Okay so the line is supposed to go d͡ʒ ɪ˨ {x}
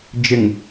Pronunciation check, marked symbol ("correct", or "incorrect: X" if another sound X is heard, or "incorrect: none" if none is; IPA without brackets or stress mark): incorrect: ŋ